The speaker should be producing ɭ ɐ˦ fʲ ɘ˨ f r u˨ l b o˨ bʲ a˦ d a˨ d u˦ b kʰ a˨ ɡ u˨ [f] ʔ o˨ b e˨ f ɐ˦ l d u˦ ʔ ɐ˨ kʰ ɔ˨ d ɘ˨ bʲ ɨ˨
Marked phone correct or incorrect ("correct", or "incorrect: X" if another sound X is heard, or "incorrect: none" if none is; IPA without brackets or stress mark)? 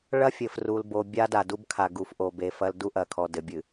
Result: correct